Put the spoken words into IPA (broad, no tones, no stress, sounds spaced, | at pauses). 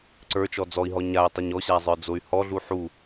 ǀ ə˞ t͡ʃ ɔ d͡z ɔ i̯ ɦ ɔ ɲ a i̯ tˤ ɛ ɲ ɔ ɕ a zˤ ə˞ d͡z o y̯ h ɔ ɮ u ħ u